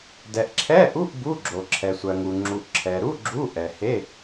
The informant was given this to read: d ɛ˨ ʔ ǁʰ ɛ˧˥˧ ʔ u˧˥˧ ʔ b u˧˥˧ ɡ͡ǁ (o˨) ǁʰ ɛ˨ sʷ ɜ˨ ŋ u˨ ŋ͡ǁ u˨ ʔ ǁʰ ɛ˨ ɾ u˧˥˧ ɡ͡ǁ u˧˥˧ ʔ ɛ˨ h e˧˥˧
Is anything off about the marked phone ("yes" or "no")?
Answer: no